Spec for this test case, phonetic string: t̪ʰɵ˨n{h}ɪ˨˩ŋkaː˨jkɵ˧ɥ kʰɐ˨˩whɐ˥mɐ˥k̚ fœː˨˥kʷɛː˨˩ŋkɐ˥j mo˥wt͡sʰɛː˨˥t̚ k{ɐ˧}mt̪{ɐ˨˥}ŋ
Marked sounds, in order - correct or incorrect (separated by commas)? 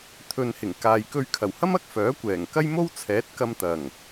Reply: correct, correct, incorrect